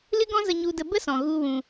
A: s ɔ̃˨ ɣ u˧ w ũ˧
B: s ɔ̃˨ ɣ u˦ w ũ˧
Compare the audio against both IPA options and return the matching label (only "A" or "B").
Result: A